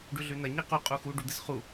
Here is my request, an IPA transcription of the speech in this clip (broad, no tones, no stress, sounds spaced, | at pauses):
ɖ ʉ ɮ ʉ n ɐ ɲ i q u qʼ u x u ɖ u d̪ ɨ s χ u